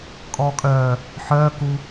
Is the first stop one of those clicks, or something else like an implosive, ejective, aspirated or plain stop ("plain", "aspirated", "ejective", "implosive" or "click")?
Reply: ejective